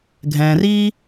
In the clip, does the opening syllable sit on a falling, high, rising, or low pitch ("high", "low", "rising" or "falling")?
low